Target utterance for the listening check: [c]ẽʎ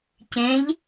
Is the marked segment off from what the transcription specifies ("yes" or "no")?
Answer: no